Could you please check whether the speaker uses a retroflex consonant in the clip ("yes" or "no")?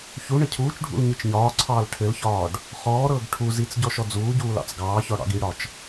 yes